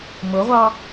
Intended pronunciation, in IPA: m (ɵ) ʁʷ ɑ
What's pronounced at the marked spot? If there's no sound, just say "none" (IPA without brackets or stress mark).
ʊ